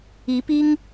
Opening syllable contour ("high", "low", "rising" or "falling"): rising